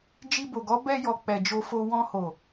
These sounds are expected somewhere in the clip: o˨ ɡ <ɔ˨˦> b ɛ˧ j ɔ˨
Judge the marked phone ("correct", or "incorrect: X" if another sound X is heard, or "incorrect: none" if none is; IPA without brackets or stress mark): correct